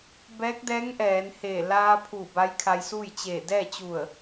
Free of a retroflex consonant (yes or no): yes